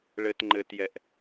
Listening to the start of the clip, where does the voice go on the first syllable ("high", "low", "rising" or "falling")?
high